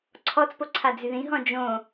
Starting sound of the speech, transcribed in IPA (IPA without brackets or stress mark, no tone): ǀʰ